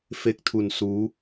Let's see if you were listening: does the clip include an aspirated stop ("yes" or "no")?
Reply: yes